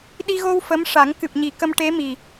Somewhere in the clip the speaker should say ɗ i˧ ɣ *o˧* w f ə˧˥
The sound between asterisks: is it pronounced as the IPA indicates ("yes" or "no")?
yes